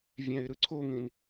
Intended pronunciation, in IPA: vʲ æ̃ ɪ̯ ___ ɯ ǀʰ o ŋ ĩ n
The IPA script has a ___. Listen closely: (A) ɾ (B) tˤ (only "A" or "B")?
A